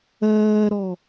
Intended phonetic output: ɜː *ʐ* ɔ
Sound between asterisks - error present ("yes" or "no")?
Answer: yes